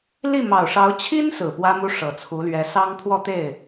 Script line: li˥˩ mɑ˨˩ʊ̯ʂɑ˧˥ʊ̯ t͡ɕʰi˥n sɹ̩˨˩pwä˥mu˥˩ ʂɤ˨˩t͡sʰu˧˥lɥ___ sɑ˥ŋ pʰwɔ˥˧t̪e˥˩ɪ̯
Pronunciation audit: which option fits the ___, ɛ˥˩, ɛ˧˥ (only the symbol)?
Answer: ɛ˧˥